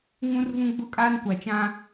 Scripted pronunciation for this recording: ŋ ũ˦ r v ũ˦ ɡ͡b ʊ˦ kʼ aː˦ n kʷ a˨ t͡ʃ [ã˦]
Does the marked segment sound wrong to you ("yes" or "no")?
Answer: no